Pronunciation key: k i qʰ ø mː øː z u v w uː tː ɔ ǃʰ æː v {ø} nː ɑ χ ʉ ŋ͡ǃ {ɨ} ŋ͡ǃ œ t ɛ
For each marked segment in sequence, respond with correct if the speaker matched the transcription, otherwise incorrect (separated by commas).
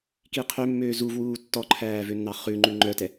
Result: correct, incorrect